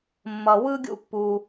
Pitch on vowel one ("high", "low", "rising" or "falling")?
low